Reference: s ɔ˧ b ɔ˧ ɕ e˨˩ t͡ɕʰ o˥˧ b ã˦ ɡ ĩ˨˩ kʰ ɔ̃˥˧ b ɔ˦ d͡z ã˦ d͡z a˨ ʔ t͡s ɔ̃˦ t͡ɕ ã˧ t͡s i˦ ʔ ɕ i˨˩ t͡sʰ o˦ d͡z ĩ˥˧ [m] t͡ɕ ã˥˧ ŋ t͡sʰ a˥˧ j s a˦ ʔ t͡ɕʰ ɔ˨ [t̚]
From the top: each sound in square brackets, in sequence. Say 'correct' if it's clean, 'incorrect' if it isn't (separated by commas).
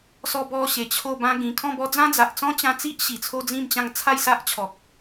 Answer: correct, incorrect